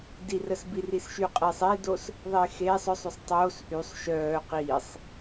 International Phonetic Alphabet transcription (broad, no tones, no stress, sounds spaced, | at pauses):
d i r ə s b i r i s ʃ y qʼ e sˤ e d o s | ðˤ e x eː sˤ œ sˤ y sˤ tˤ oː s ʔ y sˤ ʃ œː q iː sˤ